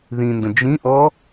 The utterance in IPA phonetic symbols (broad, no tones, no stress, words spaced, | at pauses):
ðĩndə̃ d͡ʒĩʔɔ